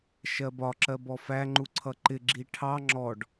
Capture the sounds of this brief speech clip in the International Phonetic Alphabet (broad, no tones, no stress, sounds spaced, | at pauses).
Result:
ʃ ɜ b ɒ ǁ ɜ b ɔ f æ ŋ͡ǃ u ǀʰ ʌ ǃ ɪ ɡ͡ǁ i ʈʰ ɑ ŋ͡ǁ ɔ ɖ